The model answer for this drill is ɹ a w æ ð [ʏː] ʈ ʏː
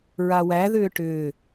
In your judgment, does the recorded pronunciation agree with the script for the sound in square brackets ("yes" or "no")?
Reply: yes